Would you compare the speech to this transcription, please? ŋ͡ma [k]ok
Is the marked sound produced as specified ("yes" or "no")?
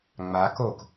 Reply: yes